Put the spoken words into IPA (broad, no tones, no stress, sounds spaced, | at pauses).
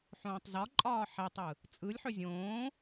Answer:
ħ õː tˤ z ɒ ǃʼ ɒː ħ ɛ tˤ ɯ | t͡sʼ ɯ lʲ ħ ʏ zʲ õː